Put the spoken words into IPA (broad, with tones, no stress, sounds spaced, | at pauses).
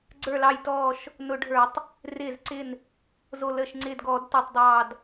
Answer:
ɡ͡ǀ ə˞˧˩ l ɑ˧˩ j t ɔː˧˩ ʃ | n ʊ˧˩˧ ɖʱ ə˞˧˩˧ tˤ | r ɪː˧˩ z ǀ ɪ˧˩ n | z o˧˩ l əː˧˩ ʃ ŋ͡ǀ ɪː˧˩ d ɡ ɔː˧˩˧ d t ʊː˧˩ tˤ dˤ ɑː˧˩ d